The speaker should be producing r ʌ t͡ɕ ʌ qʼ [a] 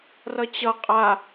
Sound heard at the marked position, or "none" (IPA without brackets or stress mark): a